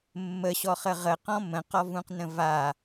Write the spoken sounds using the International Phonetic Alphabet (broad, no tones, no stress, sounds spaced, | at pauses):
mː ə ɕ ɔ χ ə ʁ ə q ɔ̃ m ə̃ q ɔ v ũ q n ə̃ v a